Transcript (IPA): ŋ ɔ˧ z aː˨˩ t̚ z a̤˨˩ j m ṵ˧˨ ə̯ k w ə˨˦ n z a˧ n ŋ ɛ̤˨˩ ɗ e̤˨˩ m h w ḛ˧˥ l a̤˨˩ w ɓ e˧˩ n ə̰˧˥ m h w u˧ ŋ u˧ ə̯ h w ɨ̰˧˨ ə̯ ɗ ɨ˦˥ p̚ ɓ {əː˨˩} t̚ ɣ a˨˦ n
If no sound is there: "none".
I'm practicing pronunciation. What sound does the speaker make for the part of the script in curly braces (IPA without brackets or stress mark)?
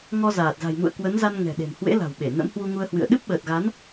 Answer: əː˨˩